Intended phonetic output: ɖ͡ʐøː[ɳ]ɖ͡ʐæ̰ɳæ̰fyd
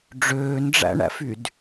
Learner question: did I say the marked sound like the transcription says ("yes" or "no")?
no